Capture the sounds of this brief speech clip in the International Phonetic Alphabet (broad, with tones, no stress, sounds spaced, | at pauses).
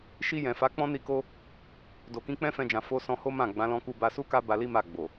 ʃ i˧ j ɛ̃˨ f a˨˦ k͡p ɔ̃˦ n i˧ k o˦ | d o˨ k ĩ˧ k͡p ɛ̃˦ f ɛ̃˧ d͡ʒ ã˨ f o˧ s ɔ̃˧ h o˦ m ã˦˨ ɡ͡b ã˨˦ l ɔ̃˧ k u˧ b a˧ s u˦ k a˦ b a˧ l i˦ m a˦˨ ɡ͡b o˨